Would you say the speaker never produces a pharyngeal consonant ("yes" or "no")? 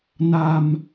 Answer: yes